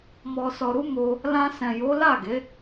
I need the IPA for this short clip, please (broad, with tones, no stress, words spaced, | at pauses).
mɔ˧sɔ˧ɾu˦ mo˧ | lã˧sɛ̃˨jo˨˦ la˦˨ɡe˨˦